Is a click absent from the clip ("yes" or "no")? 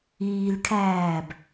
yes